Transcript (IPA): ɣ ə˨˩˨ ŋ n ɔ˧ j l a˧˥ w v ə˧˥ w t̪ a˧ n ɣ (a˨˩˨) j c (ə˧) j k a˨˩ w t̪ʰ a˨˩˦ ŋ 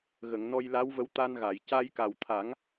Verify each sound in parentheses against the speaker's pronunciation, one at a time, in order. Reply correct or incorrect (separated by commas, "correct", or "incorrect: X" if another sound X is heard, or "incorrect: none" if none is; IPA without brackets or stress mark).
correct, incorrect: a˧